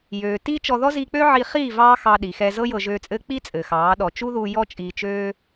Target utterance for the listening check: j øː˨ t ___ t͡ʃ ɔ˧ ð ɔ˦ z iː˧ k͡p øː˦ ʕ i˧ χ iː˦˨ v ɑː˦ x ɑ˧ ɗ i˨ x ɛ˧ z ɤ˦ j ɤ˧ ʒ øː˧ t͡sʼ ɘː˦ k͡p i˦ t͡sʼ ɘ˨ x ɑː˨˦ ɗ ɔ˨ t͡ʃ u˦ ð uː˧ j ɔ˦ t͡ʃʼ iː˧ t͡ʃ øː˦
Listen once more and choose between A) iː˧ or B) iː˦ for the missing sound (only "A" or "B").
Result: B